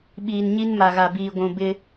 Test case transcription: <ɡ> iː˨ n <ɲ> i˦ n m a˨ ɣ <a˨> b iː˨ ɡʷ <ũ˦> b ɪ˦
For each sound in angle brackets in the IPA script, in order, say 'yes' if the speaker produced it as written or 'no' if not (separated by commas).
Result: no, yes, yes, no